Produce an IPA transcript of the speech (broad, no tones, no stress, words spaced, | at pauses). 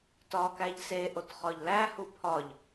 tɒkæʎ seʔot χɒʎlæhu pʰɒʎ